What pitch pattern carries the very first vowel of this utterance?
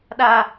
high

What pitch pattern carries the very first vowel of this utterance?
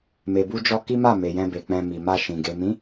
low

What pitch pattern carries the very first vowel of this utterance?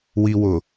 low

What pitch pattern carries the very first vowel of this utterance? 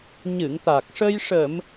low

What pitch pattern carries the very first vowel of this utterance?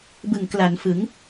low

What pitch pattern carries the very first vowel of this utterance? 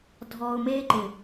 low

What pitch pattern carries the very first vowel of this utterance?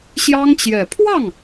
high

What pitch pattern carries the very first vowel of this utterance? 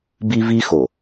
high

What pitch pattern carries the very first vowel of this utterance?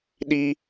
high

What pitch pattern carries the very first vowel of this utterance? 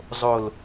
low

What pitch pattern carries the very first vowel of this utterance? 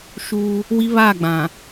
high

